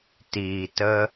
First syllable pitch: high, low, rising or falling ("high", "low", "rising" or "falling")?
low